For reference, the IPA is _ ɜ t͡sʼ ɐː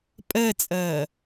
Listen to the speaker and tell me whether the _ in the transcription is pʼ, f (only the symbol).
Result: pʼ